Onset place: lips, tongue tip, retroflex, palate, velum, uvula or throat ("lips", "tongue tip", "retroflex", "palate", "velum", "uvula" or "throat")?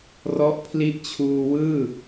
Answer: tongue tip